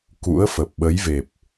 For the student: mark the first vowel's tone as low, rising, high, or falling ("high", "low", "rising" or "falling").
rising